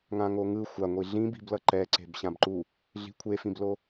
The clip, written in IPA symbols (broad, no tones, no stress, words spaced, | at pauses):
ŋãŋoŋɯ xʷaŋʷi ɮĩbi̤blʌ ǃɛ ǀe̤bɕãbǃu | ɮi̤kʷʰefĩblo